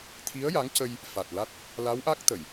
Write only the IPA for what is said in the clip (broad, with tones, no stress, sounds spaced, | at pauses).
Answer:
t̪ʰ i˧˥ ə̯ j a˧˥ ŋ c ə˧ j | f a˨˩ t̚ l a˦˥ t̚ | l a˧˥ w ʔ a˦˥ k̚ t̪ ə˨˩˨ j